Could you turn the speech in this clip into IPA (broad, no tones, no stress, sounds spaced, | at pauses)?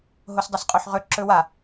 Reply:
ɦ o s dˤ ə s qʼ o ħ ʁ ɵ ǁ ɵ w a